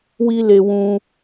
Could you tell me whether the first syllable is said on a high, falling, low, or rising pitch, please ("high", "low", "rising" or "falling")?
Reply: high